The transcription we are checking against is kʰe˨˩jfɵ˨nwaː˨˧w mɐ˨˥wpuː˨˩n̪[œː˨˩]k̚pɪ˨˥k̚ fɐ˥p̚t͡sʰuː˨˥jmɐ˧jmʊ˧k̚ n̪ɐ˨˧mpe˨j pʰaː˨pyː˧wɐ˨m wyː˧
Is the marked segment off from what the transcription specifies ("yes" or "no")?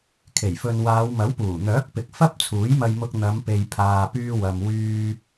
yes